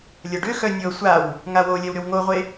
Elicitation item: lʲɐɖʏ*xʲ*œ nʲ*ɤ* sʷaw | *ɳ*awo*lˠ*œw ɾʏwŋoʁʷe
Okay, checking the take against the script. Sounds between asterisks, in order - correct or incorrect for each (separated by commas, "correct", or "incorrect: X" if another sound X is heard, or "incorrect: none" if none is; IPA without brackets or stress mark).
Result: incorrect: x, correct, incorrect: ŋ, incorrect: lʲ